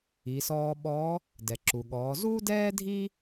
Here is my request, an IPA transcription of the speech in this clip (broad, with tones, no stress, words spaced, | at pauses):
i˩˧sɔː˧ɓɔ˧˥ | dɛ˩ǁu˩ɠɔː˩˧ zuː˥dɛː˥dʱi˥